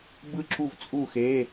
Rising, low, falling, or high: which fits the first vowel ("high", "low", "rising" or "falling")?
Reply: falling